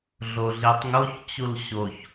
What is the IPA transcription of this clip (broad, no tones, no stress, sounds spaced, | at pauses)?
ɮ o ɮ i tˤ ŋ o ç t͡ɕ u l ɕ o ç